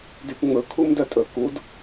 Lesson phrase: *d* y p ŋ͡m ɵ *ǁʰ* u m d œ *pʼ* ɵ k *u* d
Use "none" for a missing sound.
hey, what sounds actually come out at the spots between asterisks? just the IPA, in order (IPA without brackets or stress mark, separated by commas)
d, kʰ, tʼ, u